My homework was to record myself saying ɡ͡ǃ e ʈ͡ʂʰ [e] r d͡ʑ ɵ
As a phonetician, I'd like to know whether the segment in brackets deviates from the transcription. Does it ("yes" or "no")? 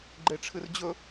yes